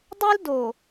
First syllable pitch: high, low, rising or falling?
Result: high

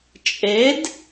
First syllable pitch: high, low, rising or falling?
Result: rising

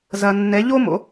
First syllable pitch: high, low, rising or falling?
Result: low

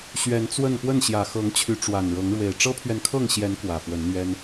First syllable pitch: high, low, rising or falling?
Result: rising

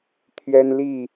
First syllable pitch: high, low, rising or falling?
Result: high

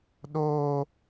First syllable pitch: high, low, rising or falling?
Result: high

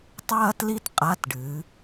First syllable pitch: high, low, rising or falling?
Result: high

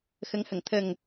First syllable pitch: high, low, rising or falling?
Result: rising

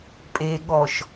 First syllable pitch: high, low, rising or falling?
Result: low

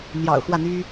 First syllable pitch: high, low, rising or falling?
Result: low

